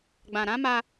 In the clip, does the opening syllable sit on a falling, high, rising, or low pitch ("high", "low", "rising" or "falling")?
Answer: low